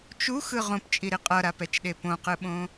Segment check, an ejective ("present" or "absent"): present